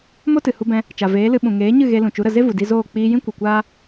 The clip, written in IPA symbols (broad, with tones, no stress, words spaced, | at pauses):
mo˦tɨ˨hu˧bɛ̃˧ | t͡ʃa˨veː˨˦lɨ˧ ɓũ˨ŋeː˨˦ɲɨ˦˨ ɣe˧lũ˨t͡ʃu˨˦ɾə˨ ze˦vu˨ di˧zoː˦˨ k͡piː˧jĩ˦ kʷɨ˨kʷaː˦